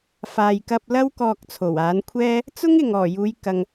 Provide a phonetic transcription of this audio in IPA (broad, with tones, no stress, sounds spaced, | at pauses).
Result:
f aː˨ j k ɐ˧ p̚ l ɐ˥ w k ɔː˧ k̚ t͡sʰ o˨˩ w aː˨˥ n kʷʰ ɛː˥ | t͡s ʊ˥ ŋ ɪ˨ ŋ ɔː˨˩ j uː˨˧ j k ɐ˨ ŋ